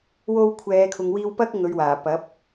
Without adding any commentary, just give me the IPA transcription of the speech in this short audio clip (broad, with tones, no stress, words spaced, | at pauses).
wo˧w kʷʰɛː˨˧kʰʊ˨ŋwiː˧wpɐ˥k̚ ŋɵ˨˧ɥwaː˨˩ pɐ˨˥p̚